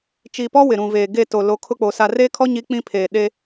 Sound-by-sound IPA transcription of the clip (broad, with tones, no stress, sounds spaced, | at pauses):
t͡ʃ iː˨ p ɔ˦ w ɪ˨ ɾ ũ˨ v eː˨ ɡ e˦˨ t o˨ l o˨˦ kʰ ʊ˦ k͡p o˨ s a˨ r eː˦ kʰ ɔ˦ ɲ i˨˦ k͡p ĩ˦ pʰ eː˨ ɗ e˦